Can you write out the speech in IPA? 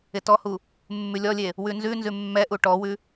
ɪ t ɔ h u | mː ʉ lʲ ɔ lʲ e | w ʉ n z ʉ n z ʉ mː ɛ ʔ u ʈ ɔ w ʉ

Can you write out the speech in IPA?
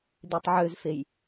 d̪ e tˤ ʕ ø z f e j

